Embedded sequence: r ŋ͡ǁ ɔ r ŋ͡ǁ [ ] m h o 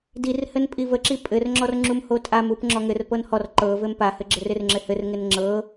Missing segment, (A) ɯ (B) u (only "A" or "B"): B